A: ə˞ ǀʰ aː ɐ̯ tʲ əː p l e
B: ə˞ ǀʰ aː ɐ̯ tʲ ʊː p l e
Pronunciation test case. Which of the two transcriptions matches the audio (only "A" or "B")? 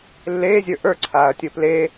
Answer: B